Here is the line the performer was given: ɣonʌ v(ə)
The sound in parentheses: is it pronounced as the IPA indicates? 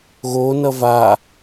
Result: no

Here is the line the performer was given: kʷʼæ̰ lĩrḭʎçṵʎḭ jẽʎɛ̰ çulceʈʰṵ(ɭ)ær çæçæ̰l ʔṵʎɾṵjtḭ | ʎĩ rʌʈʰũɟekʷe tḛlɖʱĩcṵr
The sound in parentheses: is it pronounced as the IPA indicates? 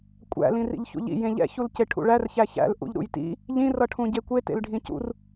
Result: yes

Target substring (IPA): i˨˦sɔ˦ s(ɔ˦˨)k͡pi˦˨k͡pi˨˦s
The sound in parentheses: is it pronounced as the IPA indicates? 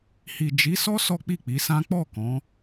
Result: no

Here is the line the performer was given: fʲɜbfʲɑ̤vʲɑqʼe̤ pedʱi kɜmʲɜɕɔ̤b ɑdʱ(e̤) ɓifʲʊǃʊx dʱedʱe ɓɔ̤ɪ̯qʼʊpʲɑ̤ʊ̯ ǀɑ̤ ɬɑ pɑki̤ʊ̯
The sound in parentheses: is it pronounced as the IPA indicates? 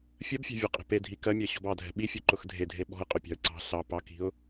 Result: no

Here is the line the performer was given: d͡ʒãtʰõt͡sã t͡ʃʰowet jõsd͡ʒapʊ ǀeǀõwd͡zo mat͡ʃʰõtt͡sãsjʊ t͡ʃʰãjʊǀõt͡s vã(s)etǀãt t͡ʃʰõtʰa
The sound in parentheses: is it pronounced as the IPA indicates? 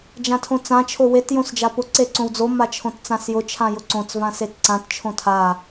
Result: yes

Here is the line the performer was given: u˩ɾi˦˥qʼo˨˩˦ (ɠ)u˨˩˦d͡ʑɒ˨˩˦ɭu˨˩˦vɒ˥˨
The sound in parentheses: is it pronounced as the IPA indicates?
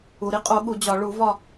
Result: yes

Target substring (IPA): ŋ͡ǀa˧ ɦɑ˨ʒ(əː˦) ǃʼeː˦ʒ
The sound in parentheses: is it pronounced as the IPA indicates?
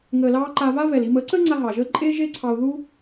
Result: yes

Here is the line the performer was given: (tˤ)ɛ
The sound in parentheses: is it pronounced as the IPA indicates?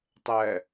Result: yes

